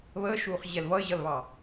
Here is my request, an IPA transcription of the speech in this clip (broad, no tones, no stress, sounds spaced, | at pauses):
β əː ʃ uː χ ʑ ɛ l v ʌ ɪ̯ ʑ ʌ l β ɑ